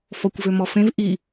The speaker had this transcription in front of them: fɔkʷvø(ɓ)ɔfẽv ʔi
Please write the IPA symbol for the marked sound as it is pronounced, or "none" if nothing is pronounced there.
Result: m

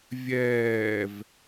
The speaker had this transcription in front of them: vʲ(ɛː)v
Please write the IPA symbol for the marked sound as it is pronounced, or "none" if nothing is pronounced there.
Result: ɛː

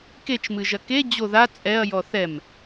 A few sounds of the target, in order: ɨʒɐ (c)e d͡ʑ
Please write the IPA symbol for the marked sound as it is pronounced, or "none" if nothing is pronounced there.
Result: k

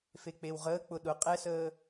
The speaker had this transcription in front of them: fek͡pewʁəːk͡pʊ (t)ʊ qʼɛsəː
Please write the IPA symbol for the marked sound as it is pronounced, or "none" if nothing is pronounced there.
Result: ɗ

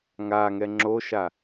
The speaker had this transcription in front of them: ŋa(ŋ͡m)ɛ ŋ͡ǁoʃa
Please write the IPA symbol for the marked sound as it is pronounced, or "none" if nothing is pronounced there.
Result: ŋ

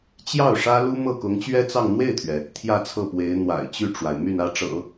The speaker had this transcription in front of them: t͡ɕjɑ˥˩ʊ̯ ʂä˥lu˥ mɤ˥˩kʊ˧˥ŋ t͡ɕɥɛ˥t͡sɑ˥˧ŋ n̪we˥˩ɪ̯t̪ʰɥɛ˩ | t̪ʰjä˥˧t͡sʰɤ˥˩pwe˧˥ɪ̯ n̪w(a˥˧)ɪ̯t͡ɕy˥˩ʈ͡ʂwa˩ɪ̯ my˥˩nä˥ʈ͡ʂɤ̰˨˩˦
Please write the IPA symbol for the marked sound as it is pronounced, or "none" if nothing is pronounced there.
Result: a̰˨˩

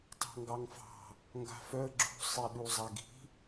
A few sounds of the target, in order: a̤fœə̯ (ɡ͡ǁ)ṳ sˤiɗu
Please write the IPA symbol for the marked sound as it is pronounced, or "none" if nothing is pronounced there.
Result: ɡ͡ǁ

